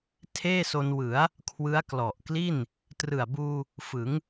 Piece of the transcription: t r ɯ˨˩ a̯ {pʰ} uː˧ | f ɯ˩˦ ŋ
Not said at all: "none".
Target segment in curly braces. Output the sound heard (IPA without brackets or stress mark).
b